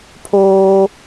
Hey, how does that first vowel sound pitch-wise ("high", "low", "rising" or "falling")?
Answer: high